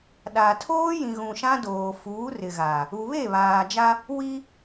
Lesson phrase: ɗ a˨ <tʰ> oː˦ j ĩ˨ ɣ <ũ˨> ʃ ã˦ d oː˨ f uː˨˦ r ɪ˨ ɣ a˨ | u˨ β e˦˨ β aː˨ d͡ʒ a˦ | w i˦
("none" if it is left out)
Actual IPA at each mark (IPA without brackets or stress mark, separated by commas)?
tʰ, ũ˨